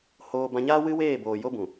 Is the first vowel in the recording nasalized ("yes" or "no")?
no